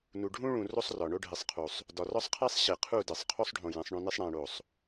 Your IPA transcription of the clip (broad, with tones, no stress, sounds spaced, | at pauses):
n u˨ ɖʱ ũ˦ ɭ ũ˨ r o˦ sˤ r ɒ˨ ɳ o˦ ɖʱ i˨ sˤ qʰ u˨ sˤ | d ɒ˨ r ɒ˦ sˤ qʰ e˦ sˤ ɕ e˨ qʰ u˦˨ d e˨ sˤ qʰ o˦ sˤ ɖʱ õ˨ j ẽ˨˦ sˤ ɳ õ˦ n i˦ sˤ ɽ æ̃˦ ɽ o˦˨ sˤ